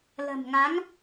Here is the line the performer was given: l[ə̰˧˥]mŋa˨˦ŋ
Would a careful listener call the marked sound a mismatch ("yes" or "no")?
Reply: yes